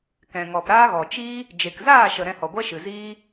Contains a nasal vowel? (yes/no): yes